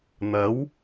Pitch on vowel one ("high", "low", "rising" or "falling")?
rising